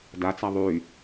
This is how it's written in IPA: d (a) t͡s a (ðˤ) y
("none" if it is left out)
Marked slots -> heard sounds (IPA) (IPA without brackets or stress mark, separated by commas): a, ðˤ